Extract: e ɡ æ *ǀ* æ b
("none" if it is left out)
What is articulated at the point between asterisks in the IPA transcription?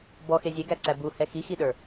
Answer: ǀ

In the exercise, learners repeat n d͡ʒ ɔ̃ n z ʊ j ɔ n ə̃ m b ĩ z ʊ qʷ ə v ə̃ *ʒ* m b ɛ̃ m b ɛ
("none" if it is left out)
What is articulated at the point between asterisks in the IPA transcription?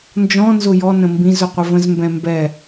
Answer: z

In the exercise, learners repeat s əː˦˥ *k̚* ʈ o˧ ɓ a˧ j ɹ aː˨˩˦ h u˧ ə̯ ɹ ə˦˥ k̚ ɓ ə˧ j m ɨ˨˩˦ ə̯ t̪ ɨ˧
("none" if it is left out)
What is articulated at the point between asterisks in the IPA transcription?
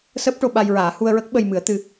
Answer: p̚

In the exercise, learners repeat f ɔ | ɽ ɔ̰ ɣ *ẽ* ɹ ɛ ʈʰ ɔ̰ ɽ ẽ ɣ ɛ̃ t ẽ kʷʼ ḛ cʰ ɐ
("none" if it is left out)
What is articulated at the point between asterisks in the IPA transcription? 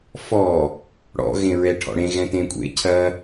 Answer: ẽ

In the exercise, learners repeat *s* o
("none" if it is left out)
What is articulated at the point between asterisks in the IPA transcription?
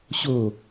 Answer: ɕ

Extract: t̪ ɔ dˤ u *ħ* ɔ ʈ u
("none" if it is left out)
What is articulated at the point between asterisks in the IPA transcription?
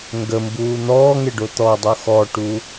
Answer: x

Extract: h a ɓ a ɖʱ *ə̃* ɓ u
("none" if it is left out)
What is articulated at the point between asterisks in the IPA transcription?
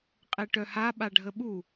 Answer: ə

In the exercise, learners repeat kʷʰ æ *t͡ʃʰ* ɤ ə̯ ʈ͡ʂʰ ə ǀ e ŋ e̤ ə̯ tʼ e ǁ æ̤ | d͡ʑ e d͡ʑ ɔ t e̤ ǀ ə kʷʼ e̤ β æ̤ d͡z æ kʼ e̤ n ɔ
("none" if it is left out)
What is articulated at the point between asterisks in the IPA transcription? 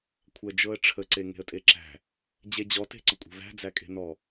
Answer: d͡ʒ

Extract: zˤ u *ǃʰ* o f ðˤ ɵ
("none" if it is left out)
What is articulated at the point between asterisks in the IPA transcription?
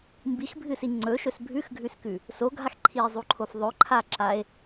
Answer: ǃʰ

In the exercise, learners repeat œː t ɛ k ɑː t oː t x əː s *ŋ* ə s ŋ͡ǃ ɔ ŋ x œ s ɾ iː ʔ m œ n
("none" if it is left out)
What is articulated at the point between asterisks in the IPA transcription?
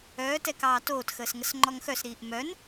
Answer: ŋ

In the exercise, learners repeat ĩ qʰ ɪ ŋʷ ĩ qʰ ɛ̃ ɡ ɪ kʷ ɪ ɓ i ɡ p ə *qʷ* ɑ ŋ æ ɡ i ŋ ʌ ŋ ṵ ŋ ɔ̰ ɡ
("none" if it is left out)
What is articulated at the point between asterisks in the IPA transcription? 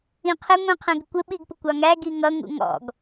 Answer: kʷ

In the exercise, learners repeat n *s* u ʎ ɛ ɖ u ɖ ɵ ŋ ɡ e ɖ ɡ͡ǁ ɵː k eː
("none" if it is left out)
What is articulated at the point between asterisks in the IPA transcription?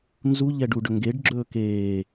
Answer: z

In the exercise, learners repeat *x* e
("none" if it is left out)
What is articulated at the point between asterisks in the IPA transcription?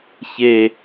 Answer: ç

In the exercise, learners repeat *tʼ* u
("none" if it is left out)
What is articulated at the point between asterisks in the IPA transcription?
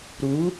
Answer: ɾ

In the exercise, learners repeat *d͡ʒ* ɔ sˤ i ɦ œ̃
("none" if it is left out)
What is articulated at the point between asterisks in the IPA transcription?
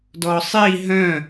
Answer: d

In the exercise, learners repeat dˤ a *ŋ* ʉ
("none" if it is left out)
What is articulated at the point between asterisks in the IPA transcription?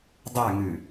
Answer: ŋ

